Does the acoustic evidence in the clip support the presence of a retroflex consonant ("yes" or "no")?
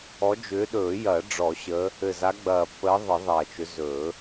yes